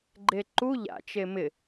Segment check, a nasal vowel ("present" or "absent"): absent